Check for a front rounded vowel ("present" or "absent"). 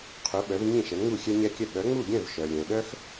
present